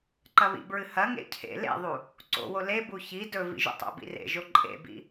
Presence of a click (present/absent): present